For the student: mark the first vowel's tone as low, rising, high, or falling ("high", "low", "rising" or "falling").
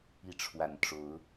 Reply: rising